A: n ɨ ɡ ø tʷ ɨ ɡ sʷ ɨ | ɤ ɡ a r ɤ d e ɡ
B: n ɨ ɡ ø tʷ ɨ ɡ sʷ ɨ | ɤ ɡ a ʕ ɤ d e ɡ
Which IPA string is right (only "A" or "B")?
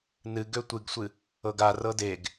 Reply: A